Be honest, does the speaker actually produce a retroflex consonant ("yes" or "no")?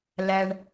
yes